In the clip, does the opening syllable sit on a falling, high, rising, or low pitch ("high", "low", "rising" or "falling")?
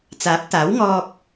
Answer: rising